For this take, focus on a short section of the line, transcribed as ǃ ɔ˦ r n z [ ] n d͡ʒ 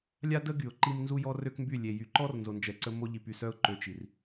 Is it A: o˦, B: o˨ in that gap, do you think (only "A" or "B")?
B